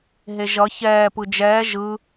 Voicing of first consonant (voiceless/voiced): voiced